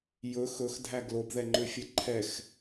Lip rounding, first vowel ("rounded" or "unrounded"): rounded